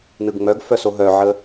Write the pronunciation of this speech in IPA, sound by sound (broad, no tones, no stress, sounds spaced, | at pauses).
n ɯ ɡ ŋ͡m œ ɡ f œ s o ɦ œ ʕ ə